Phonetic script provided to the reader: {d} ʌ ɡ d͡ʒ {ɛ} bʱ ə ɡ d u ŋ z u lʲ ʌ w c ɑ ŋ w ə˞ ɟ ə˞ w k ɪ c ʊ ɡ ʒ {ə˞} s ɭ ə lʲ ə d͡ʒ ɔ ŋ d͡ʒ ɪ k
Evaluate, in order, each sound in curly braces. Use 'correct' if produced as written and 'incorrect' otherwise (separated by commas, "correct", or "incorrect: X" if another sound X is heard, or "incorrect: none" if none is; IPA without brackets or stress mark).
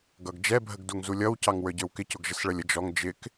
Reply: incorrect: ɡ, correct, incorrect: ə